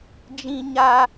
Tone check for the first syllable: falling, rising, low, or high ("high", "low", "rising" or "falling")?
high